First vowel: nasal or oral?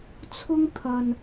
oral